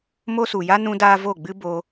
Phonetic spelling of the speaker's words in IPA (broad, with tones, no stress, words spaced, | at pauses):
mo˦su˨ja˦ nũ˦daː˦vo˦˨ɡ͡bɨ˦ bo˧